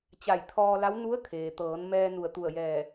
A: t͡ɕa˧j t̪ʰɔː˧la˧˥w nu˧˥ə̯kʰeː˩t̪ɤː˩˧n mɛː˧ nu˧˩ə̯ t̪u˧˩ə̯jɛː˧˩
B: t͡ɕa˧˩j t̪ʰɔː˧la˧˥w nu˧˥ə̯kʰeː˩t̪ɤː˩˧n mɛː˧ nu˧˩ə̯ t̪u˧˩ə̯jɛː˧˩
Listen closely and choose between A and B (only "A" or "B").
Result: B